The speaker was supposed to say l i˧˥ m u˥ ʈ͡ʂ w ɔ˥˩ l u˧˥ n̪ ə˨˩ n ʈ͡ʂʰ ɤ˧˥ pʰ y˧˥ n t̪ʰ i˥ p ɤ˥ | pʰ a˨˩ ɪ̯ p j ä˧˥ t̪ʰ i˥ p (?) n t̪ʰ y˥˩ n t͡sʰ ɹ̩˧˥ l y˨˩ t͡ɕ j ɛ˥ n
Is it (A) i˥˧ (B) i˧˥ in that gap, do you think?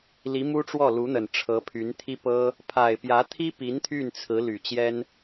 B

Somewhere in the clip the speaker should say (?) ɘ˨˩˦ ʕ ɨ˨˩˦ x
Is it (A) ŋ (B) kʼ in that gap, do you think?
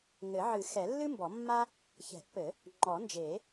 A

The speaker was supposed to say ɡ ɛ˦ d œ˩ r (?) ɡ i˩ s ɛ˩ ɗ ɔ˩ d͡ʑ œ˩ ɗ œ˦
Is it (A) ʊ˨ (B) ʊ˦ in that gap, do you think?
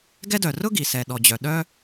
B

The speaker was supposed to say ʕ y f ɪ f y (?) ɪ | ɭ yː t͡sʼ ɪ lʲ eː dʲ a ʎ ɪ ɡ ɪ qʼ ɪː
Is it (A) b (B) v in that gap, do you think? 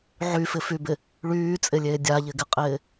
A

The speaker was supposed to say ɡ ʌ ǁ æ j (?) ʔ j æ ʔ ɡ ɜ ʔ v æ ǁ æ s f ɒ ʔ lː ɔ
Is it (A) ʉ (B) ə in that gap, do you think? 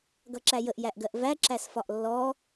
B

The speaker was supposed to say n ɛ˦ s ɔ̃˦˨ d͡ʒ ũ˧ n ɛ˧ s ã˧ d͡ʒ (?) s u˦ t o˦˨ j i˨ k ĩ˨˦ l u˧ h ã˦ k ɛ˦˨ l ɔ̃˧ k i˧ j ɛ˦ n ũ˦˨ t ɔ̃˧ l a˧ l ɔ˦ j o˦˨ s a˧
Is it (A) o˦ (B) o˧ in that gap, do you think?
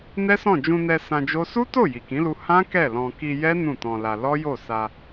A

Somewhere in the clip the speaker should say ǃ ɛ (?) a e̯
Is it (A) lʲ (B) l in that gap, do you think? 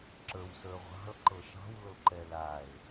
B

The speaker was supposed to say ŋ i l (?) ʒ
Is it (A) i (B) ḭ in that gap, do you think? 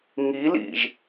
B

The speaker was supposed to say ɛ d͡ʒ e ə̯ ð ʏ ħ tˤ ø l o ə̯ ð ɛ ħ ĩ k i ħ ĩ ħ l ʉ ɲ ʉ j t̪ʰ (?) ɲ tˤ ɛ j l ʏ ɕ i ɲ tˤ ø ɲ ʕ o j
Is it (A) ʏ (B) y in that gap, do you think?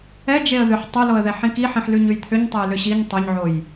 A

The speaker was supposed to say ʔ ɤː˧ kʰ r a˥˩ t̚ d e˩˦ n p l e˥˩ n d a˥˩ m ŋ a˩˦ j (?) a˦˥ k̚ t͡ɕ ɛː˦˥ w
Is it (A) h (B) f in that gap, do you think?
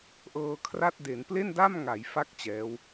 B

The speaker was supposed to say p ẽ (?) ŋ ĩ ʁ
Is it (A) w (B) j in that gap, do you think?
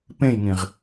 B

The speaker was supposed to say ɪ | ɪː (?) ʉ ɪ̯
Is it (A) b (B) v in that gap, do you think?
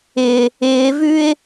B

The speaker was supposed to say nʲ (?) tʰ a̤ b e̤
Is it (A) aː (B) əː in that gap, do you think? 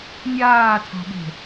A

